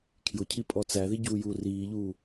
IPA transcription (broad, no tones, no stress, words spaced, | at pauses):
kʰjʊcʰi pʼɔt͡sæði ɟuːjuːriːʎuː